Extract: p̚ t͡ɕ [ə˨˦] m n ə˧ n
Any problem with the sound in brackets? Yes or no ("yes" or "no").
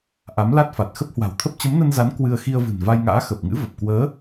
no